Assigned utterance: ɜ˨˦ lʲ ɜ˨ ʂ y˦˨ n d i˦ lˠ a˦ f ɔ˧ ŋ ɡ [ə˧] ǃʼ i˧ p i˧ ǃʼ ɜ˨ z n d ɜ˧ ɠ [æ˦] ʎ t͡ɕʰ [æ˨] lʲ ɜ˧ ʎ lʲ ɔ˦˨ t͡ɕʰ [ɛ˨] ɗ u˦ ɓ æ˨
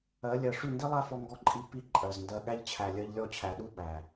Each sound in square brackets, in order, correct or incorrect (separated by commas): incorrect, correct, correct, incorrect